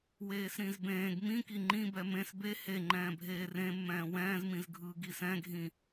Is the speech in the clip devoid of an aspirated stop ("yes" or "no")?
yes